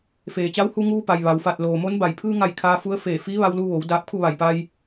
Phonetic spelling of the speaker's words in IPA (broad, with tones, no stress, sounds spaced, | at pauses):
f eː˩ t͡ɕ a˧˥ w h u˧ ŋ uː˧ p a˩ j ʋ a˩ w f a˧˩ t̚ l oː˩ m o˧˥ n b a˧˩ j pʰ ɯː˧ ŋ a˧˩ j kʰ aː˧ f u˧˥ ə̯ f eː˧˩ f iː˧˥ ʋ a˧ w l u˧ ʋ o˩˧ w d aː˧ p̚ kʰ u˥˨ ʋ a˧˩ j p a˧ j